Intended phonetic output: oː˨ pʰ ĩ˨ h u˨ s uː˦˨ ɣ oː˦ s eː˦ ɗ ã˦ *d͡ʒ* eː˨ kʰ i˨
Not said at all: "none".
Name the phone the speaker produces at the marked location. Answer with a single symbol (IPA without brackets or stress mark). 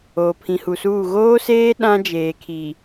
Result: d͡ʒ